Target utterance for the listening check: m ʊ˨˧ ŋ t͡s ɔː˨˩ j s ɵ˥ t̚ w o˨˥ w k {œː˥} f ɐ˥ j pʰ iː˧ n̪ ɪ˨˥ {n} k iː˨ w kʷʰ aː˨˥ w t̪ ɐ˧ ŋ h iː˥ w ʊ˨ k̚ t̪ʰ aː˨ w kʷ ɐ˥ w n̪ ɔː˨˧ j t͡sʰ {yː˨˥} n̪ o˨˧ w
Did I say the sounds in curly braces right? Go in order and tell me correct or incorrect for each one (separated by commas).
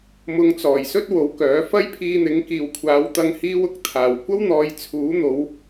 incorrect, incorrect, incorrect